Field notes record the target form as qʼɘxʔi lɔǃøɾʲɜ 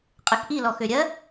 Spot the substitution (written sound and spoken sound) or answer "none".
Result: ǃ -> x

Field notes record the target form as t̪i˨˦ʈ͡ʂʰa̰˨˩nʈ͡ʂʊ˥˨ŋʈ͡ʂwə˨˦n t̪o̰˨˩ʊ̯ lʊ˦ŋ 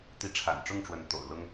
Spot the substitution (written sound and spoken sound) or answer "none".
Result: none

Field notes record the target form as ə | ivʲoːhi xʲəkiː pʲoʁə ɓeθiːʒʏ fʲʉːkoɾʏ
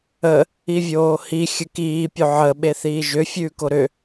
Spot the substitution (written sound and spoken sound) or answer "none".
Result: ʁ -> ʕ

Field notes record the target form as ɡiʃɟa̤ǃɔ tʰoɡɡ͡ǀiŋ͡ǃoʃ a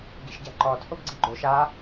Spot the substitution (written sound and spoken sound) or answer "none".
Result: ŋ͡ǃ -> ɡ͡ǃ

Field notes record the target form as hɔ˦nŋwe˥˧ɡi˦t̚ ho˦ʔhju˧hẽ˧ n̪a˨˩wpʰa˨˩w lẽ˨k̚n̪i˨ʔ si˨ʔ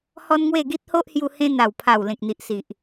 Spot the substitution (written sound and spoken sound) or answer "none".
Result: none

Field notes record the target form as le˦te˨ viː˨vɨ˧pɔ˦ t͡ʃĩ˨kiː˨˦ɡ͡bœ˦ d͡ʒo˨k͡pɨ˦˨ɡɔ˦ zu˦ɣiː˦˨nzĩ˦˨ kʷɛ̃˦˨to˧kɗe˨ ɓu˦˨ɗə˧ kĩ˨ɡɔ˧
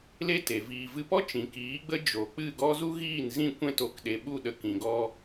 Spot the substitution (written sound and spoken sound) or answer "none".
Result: œ˦ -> ə˦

